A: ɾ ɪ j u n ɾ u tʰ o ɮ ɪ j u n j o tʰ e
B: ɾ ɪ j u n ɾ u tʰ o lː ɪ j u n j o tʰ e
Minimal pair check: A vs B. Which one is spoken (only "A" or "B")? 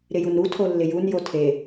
B